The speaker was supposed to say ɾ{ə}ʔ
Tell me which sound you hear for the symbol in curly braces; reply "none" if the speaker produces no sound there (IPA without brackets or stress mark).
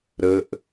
ə